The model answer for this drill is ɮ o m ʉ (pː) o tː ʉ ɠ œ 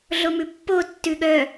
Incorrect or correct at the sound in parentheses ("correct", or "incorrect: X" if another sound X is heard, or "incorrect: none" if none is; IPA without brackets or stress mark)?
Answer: correct